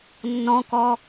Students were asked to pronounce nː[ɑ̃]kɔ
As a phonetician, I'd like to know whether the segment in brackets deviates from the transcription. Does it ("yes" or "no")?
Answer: yes